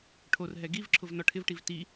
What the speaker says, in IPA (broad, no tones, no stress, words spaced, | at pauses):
ʈʰorɦɛ ɡivǁʰʊv nɔʈʰɪvʈiv ti